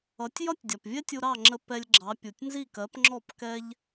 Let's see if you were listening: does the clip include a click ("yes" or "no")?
yes